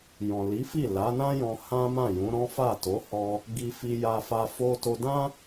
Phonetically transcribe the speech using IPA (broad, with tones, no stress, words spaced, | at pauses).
jɔ̃˨li˨˦fi˦˨ la˨˦nã˦jɔ̃˧ hã˦mã˦˨jũ˨˦ɾɔ̃˦ fa˦˨to˨˦hɔ˧ | ɡi˧fi˧ ja˧fa˧ fo˧to˧dã˦